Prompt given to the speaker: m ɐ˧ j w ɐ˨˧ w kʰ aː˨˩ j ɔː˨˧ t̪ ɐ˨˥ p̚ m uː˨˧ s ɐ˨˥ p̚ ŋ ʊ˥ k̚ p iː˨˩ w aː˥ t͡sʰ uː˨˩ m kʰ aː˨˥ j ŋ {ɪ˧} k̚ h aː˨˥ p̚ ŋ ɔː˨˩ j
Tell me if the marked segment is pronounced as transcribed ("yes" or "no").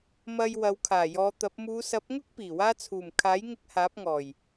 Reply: yes